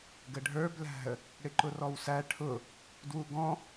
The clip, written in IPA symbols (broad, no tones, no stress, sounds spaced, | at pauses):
ɡ ə ɖʱ ə˞ b l æ̤ ə̯ | ɽ ɪ ǃ ʊ r ɔ w s æ ʈʰ ʊ | d w u ɡ ɔ̃